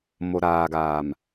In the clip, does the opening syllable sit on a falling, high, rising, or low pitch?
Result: low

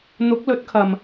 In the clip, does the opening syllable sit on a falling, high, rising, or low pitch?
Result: rising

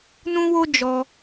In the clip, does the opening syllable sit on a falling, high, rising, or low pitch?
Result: high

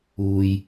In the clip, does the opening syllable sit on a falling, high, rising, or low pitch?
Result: low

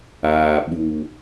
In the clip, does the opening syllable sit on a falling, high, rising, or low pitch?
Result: low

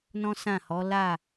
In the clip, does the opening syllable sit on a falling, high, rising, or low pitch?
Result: high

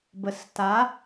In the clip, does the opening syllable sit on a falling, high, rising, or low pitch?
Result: low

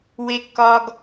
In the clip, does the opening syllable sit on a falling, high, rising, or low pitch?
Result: high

